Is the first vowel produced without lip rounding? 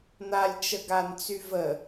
yes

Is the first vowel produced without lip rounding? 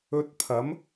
no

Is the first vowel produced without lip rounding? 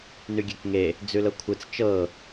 no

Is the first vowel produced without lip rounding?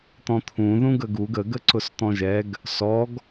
no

